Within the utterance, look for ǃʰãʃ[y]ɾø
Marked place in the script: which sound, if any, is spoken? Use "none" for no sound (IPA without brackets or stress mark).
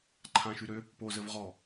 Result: y